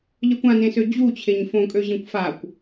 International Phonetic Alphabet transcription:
ʎ ɜ kʷ ã n ẽ s ø d͡ʑ u t͡ɕʰ e ɲ f õ kʼ ø ʑ ẽ kʷ f a kʷ

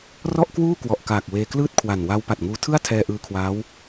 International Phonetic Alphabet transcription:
r ɔ˥˩ ʔ k w uː˥˩ k w ɔ˨˩ ʔ k aː˨˩ k̚ w eː˧ k l ɯː˥˩ t̚ kʰ w a˨˩ n w a˦˥ w p a˨˩ t̚ ŋ uː˧ tʰ ɯ˥˩ a̯ tʰ ɛː˧ ʔ ɯː˧ kʰ w aː˦˥ w

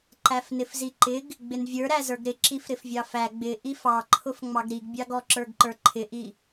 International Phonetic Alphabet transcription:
ǃ æ f n ɪ f z i ǃ ɪ ɡ | ɡ͡b ɪ n vʲ ə˞ ɾ æ z ə˞ ɡ ɾ ɪ ǁ i f ɾ ɪ f vʲ ɑ f æ ɡ͡b ɪ ʔ i f ɑ ǃʰ ʊ f ŋ͡m ɑ ɡ ɾ i ɡ bʲ ɑ ɡ ɔ ǁ ə˞ ɡ ǃ ə˞ ǃʰ ɪ ʔ i

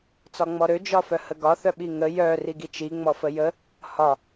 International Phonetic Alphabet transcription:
t͡s ɒ ŋ͡m ɔ ɾ ø d͡ʒ ɒ f œ h ə ɡ ɒ θ œ ɓ i ŋ ə j œ r i ɡ i t͡ʃ i ŋ͡m ɔ f ə j ə | h ɒ

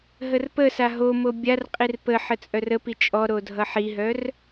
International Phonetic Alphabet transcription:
ɦ ə r p ə s a ɦ o m o bʲ a r qʼ i r p ə ħ ə t͡sʼ œ r ə p i t͡ʃʼ ɔ ɾ o dʱ ʌ ħ i ɦ œ r

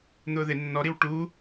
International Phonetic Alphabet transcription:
n̪ ʊː ð ɪ nː ɔ ɾ i w ʈ u

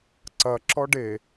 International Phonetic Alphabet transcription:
ǀ ɐ ǁ ɔ ɖ e

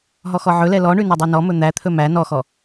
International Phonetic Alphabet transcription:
ɦ ɔ x ɔ ʕ ɵ l ɛ l ɔ ɳ ʉ n ɵ dˤ y n ɔ m ɵ n̪ æ t̪ʰ ɵ m æ n ɔ x ɔ

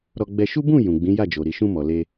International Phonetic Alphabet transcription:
ɾ ɔ˧ ɡ͡b ɛ˦ ʃ u˦ b ũ˦˨ j ũ˨ ɡ͡b ĩ˨˦ j a˦˨ d͡ʒ o˨ ɾ i˨ ʃ ũ˧ m ɔ˨ l e˧

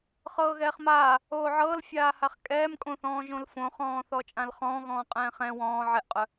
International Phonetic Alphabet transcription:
χ ɤː ɣ ɛː χ m aː | oː ʕ ɤː l fʲ aː h a χ kʼ ɛː m kʼ õ θ ɔ̃ː ʒ õ l f õ χ ɔ̃ː θ ɔ t͡ʃʼ ã l χ ɔ̃ː ɣ ɔ̃ː qʼ ɛ̃ː χ ɛ̃ w ɔ̃ː ʕ ɛ ʔ qʼ œ

